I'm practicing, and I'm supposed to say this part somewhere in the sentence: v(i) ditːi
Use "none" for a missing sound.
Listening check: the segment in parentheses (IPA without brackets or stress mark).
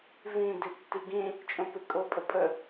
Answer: ĩ